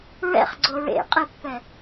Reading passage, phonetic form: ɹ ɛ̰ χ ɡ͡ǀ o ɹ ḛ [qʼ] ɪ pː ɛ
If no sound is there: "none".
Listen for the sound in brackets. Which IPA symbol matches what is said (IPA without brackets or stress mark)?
qʼ